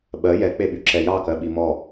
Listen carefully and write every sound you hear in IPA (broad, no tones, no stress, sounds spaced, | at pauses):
ɓ ɜ j ɛ k͡p e ɓ y ǁ ɛ j ɑ k ɜ ɓ i m ɔ